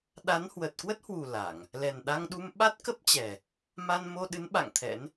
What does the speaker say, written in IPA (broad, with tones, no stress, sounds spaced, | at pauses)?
ɗ a˨˦ n h w ə˨˩ t̚ k w ə˦˥ t̚ h w u˨˩ l a˧˩˨ ŋ | l ɛ˨˩ n ɗ a˧ ŋ ɗ u˧ m ɓ a˦˥ t̚ k ə˦˥ p̚ t͡ɕ ɛ˨˩ | m a˧ n m o˧ ɗ ɨ˨˦ n ɓ a̰˧˨ ŋ t̪ʰ ɛ̰˧˥ n